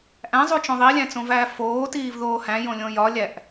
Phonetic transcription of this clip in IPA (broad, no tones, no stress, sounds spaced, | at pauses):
ʔ æ̃ zˤ u t͡ʃ õ ðˤ i lʲ æ̃ t͡s õ v æː f oː t iː v ð oː h æ̃ j õ lʲ õ j ɒ lʲ æ ʔ